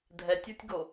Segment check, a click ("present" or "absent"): absent